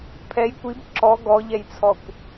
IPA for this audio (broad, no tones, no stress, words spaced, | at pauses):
pʰɛj kʷib ǁɔ ɡɔʎɛjt͡sʰɔkʷ